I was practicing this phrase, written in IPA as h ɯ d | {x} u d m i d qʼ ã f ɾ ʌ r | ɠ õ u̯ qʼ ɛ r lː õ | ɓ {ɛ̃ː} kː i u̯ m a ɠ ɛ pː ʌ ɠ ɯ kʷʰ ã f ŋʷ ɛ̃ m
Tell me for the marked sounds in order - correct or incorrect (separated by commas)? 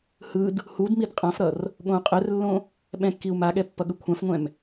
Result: incorrect, incorrect